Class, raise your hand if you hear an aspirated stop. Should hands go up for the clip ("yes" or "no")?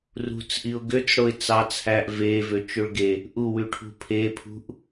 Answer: yes